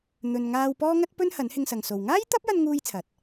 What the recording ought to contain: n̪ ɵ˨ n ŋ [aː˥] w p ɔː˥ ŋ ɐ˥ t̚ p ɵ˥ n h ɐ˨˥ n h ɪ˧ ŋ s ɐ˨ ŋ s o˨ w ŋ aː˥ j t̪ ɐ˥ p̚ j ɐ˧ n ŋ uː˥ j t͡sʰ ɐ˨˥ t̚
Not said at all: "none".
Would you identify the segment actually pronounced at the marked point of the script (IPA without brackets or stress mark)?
aː˧